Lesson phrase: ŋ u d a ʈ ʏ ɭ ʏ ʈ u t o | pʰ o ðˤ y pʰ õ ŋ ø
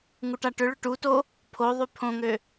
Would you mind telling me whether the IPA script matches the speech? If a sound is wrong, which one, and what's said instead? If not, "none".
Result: d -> ʈ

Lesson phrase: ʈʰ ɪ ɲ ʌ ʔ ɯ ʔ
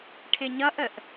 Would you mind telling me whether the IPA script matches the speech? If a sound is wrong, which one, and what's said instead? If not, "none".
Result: ɯ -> ə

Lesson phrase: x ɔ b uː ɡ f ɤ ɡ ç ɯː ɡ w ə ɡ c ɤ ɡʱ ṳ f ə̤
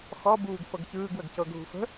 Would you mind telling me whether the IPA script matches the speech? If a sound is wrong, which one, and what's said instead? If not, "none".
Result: none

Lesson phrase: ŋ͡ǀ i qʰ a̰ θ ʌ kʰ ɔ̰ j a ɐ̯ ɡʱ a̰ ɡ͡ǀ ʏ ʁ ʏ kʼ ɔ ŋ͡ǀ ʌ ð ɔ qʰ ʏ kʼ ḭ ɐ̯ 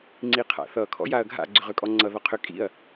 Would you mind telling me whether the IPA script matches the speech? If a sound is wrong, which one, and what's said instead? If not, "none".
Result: none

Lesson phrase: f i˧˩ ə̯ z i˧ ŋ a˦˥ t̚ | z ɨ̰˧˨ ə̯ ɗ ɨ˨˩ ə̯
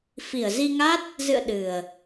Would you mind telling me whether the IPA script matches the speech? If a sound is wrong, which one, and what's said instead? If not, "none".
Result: none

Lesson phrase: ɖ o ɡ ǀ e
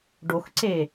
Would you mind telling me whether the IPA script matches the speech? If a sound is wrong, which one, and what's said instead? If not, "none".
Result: ɡ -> x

